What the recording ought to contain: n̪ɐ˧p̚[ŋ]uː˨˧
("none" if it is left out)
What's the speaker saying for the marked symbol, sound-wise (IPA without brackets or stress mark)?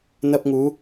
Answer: ŋ